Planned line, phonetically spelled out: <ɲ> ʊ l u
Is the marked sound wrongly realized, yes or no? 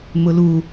yes